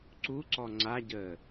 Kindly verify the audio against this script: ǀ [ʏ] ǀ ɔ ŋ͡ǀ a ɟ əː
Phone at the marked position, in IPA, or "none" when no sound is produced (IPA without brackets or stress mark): u